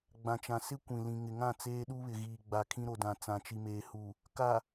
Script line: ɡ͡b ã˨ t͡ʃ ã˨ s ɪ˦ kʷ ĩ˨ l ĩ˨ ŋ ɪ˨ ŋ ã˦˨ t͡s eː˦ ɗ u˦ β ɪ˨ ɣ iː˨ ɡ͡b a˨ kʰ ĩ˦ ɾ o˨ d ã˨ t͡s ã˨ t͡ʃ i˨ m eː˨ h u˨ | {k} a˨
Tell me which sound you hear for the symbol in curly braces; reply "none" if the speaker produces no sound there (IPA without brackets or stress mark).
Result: k